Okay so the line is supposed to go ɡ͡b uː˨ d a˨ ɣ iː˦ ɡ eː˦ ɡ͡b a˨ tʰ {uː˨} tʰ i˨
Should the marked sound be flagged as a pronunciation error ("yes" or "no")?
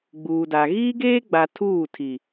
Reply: yes